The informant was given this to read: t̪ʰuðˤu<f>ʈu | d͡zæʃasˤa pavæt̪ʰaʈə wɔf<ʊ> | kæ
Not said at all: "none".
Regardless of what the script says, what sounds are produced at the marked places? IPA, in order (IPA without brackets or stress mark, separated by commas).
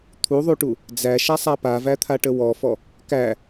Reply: none, ɔ